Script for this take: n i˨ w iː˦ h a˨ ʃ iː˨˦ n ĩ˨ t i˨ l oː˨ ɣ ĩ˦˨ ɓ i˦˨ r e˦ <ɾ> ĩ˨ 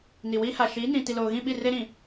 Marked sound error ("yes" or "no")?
no